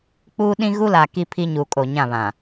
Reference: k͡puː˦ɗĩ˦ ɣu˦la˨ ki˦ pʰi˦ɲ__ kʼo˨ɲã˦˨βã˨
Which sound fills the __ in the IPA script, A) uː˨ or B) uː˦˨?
A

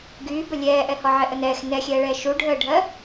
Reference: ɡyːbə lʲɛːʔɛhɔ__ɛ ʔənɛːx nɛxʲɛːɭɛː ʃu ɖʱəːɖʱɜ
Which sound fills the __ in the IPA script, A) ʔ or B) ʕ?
B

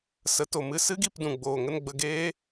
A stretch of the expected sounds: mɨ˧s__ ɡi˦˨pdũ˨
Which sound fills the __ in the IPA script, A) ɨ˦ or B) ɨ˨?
A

